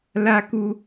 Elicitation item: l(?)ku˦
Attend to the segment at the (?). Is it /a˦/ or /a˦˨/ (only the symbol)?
a˦